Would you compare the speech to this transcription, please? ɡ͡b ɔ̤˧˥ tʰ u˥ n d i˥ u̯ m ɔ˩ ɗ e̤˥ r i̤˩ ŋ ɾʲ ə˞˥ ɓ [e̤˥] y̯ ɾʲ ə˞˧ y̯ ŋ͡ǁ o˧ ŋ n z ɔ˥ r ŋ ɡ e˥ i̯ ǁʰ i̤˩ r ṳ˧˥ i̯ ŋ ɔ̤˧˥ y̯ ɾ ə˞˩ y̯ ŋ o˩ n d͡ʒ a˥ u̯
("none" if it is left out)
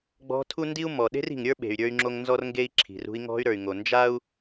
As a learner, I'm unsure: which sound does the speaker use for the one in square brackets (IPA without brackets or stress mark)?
e̤˩